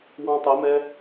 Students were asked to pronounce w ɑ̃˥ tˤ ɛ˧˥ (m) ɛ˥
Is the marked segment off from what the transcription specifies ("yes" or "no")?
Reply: no